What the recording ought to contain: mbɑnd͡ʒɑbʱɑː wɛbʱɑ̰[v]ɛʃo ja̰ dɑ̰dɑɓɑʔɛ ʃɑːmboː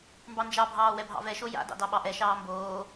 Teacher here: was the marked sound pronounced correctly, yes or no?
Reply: yes